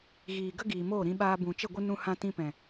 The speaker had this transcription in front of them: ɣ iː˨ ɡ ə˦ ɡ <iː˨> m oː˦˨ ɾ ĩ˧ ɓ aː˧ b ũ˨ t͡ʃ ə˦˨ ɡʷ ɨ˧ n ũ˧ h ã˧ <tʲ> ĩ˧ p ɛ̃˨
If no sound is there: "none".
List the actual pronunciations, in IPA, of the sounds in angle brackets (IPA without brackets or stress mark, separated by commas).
iː˨, t